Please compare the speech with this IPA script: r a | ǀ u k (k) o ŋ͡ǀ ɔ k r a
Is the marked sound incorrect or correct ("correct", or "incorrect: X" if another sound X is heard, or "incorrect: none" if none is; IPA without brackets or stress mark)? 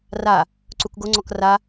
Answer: incorrect: ɡ